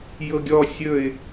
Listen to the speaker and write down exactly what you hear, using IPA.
j ɤ ɡʲ ɔ sʲ ɵ ɪ̯

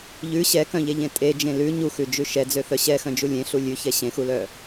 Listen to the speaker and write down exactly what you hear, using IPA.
ʎ ʉ ɕ ɛ k œ̃ ʎ e ʎ ẽ tʼ e d͡ʒ ẽ l ʉ ɲ u x ʉ d͡ʒ ʉ ʃ ɛ d͡z ø θ œ ɕ ɛ x œ̃ d͡ʒ u lʲ ẽ ɬ u lʲ ʉ ç ɛ ɕ ẽ x u l œ

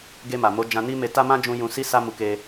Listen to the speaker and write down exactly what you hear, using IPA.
ɡ e˧ m a˨ m o˨˦ d͡ʒ ã˧ n i˦ m e˧ t a˦ m ã˦ d͡ʒ ũ˧ j ũ˧ s i˦ s a˦ m u˧ k e˧

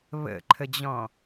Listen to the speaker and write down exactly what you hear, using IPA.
β ə̰ ǃʰ ə d͡ʑ ɔ̃

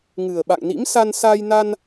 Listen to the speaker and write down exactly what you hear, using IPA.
ŋ ɨ˨˩ ə̯ ɓ a̰˧˨ ŋ n ḭ˧˥ m s a˧ n s a˧ j n a˧ n

